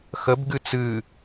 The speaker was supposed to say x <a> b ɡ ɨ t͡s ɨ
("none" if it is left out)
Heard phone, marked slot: ə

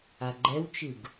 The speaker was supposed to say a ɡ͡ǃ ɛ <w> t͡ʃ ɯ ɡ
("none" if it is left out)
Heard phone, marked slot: w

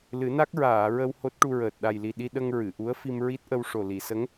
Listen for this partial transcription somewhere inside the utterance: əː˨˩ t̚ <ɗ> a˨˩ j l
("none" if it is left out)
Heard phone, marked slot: ɗ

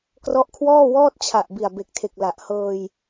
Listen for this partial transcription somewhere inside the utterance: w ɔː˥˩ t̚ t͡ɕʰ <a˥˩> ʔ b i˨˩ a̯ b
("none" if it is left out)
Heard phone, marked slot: a˨˩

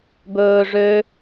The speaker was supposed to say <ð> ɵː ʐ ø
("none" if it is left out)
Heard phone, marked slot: b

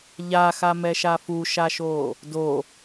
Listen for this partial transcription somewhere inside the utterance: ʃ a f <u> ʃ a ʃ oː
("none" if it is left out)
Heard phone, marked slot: u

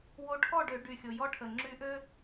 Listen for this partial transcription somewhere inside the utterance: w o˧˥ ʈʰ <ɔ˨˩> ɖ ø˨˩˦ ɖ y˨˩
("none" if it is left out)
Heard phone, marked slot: ɔ˥˨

